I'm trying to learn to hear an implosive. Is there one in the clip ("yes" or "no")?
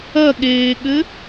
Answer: yes